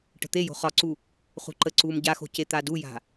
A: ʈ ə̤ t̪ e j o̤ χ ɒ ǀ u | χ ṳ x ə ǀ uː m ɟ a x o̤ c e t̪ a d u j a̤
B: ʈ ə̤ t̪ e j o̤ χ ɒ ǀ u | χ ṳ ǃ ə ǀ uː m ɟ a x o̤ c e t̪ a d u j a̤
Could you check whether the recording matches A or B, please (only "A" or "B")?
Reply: B